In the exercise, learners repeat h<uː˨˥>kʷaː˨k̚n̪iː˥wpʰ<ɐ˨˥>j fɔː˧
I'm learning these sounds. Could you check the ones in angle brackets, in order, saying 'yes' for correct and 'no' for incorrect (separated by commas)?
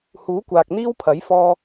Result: yes, yes